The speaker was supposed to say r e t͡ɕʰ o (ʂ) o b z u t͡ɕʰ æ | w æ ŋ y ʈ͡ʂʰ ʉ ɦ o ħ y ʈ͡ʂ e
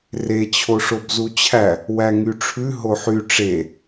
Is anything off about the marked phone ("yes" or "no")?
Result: no